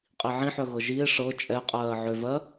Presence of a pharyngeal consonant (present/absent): present